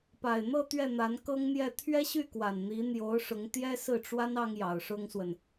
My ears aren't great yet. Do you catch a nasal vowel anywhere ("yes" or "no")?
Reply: no